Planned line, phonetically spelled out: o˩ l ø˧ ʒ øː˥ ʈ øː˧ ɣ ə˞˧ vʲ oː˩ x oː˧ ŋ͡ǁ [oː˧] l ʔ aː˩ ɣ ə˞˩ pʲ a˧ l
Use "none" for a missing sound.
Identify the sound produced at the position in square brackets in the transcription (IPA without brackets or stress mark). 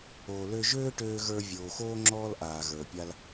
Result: ɔː˧